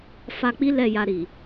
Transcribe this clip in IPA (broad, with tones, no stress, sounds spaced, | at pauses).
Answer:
f a˧ k͡p i˦ l ɛ˦˨ j a˧ ɾ i˨